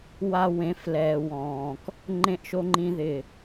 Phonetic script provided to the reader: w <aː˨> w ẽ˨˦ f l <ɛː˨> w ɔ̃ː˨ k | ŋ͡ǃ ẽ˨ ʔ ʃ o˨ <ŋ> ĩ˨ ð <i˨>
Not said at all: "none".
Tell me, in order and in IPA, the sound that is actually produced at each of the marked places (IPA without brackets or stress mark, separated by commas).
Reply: a˨, ɛː˨, ŋ͡ǃ, ɪ˨